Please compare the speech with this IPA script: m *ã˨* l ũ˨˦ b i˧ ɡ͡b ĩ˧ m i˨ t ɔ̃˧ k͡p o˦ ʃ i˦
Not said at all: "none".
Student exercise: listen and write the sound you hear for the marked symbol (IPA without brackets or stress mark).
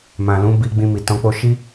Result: ã˨